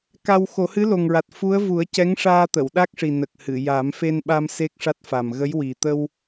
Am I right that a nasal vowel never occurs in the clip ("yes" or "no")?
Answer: yes